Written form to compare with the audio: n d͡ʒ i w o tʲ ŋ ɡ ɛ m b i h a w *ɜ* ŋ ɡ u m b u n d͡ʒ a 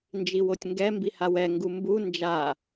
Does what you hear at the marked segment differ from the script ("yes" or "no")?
yes